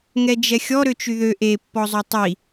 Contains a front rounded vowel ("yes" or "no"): yes